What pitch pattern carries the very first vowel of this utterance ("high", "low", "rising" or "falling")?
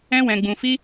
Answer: high